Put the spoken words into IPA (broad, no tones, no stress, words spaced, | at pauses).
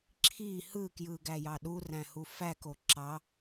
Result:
ǁʰi hɯkjɯɡæjɑ ɗuræ̃hu fæko ǁɑ